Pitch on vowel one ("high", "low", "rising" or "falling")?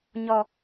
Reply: low